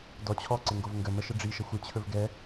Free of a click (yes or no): no